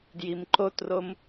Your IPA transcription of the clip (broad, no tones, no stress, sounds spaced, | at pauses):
d j i m ǃ o t r o m